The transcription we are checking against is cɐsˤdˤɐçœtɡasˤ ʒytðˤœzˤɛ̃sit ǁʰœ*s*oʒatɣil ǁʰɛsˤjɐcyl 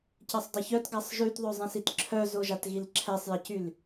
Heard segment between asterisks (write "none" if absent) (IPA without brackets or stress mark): z